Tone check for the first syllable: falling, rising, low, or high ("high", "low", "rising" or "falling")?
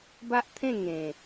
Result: high